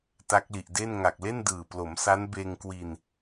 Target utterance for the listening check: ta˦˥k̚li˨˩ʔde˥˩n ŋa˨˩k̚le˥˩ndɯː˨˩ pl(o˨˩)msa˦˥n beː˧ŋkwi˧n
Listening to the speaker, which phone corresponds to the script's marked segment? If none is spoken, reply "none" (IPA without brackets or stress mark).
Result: o˩˦